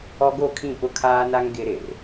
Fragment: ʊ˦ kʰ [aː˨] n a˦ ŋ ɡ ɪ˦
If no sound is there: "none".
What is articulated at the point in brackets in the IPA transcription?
aː˦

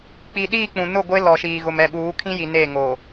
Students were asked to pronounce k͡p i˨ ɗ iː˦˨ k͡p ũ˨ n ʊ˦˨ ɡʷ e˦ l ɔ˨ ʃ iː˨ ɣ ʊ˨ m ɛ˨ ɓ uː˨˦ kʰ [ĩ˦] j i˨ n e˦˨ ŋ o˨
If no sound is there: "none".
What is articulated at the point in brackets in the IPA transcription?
ĩ˦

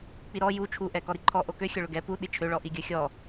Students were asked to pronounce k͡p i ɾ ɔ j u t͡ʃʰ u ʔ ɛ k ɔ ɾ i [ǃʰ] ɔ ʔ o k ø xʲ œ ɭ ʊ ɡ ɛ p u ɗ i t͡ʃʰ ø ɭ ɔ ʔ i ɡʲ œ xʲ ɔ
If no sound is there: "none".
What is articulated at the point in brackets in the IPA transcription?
ǃʰ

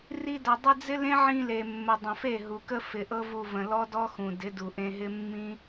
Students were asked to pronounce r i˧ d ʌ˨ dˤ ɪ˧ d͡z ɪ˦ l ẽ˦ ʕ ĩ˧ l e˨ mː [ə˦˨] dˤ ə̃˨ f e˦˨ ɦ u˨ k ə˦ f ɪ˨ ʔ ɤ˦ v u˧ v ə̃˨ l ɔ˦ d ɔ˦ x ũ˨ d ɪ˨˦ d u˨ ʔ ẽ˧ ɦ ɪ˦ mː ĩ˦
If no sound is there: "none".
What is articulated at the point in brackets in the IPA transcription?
ə˨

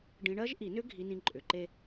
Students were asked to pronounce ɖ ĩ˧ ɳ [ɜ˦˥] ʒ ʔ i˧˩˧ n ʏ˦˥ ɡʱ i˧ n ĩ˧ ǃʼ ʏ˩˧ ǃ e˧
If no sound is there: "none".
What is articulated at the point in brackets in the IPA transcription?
ɜ˦˥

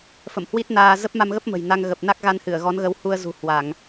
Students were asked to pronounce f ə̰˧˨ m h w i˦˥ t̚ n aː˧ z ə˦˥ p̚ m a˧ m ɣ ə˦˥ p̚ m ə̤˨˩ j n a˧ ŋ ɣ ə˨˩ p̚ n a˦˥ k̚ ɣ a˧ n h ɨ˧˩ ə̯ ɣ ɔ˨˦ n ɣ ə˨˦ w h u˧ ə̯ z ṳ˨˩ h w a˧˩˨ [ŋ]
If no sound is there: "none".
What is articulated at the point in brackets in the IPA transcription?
ŋ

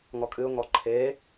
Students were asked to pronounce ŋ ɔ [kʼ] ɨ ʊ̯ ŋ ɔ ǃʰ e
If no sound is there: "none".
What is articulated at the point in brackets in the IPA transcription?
kʼ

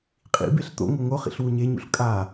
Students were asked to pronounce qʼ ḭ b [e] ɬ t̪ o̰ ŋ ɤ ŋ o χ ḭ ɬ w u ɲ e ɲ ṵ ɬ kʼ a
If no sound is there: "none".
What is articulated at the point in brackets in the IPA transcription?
e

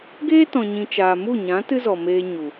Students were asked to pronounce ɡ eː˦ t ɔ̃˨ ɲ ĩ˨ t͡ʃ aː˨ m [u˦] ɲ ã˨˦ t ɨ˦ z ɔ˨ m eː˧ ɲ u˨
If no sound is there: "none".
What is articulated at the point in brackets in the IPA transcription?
u˦˨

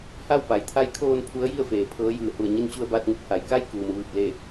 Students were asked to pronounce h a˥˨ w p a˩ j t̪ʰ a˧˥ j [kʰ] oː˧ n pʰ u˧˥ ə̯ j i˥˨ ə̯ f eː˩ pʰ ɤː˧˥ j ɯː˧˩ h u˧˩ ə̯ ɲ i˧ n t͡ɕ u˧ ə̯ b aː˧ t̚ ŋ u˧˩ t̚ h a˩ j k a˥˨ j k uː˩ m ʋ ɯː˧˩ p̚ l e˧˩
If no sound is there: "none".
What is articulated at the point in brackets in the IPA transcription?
kʰ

